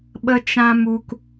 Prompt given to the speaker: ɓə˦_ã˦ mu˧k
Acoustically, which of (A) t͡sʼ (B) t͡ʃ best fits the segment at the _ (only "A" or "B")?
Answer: B